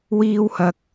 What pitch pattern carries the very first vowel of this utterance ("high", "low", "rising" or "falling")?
high